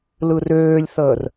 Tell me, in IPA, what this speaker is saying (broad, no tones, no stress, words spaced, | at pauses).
lɯrøːlʲθəːr